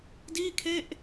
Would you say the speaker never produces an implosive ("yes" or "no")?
yes